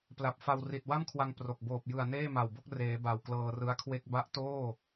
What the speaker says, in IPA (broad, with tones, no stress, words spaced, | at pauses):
pla˨˩p̚ fa˧wri˨˩t̚wa˥˩mkʰwa˧ŋ pro˨˩k̚ boː˨˩p̚jɯ˨˩a̯ neː˥˩ma˨˩wbo˥˩k̚ reː˩˦ ba˨˩wklɤː˧rɯ˦˥a̯kʰwe˥˩k̚ ba˦˥ʔtoː˥˩